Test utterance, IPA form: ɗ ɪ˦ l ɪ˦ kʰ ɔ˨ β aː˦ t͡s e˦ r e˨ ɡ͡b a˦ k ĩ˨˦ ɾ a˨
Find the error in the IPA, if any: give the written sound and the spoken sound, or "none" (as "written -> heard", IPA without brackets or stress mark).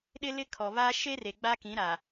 t͡s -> ʃ